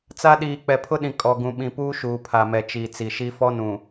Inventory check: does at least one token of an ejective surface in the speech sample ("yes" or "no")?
yes